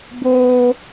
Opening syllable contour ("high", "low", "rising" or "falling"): high